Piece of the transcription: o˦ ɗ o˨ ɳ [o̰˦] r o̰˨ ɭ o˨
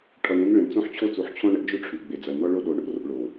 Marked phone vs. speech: correct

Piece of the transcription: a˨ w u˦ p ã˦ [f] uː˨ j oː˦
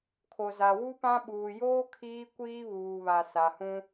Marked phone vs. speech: incorrect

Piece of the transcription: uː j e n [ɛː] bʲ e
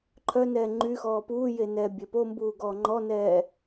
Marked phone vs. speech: correct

